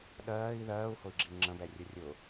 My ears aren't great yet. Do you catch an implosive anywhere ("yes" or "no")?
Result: yes